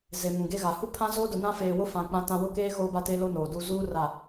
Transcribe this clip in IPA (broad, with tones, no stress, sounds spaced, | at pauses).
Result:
z e˨ m ũ˨ ɡ e˦ ɣ a˨ h u˦ pʰ ã˦ z oː˦ d ʊ˨ n ã˦ f eː˨ w ʊ˦ f ã˨ k͡p ã˦ t ã˦ w ʊ˦ k eː˦ ɣ oː˦ b a˦ t eː˦ l o˦ n oː˨ d u˦ z uː˦ r a˦˨